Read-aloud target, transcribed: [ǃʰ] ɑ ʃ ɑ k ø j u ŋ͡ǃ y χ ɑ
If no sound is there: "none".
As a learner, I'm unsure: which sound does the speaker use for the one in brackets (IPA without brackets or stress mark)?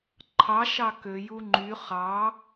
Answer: ǃʰ